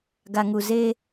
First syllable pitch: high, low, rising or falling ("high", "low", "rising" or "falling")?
low